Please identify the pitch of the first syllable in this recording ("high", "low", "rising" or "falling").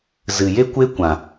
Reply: low